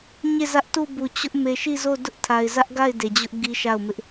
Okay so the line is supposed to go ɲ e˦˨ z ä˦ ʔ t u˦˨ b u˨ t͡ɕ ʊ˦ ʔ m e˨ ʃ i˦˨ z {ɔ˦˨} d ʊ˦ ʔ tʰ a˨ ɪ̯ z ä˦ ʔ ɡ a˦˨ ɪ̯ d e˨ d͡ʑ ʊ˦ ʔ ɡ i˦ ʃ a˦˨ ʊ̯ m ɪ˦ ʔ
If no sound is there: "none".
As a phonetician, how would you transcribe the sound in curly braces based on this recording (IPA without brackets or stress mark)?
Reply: o˦˨